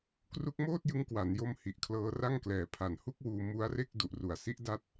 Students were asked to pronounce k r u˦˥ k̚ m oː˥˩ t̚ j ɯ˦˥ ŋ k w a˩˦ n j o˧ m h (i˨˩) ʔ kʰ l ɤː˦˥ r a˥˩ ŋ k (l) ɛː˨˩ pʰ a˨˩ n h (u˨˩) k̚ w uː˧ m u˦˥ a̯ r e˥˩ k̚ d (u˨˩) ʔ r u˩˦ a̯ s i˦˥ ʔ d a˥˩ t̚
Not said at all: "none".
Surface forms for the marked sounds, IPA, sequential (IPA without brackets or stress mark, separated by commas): i˨˩, l, u˥˩, u˨˩